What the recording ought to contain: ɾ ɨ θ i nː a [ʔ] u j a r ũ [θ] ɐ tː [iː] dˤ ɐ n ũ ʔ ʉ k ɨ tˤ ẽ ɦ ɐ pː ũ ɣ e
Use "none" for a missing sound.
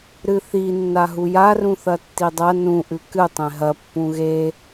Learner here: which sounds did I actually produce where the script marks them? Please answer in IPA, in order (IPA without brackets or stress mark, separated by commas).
ɦ, θ, i